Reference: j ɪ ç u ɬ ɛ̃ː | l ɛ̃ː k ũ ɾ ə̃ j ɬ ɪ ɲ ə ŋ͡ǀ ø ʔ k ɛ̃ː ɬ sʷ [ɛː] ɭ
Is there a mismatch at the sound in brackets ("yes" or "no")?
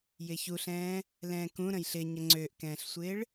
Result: yes